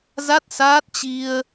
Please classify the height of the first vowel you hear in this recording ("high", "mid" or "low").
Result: low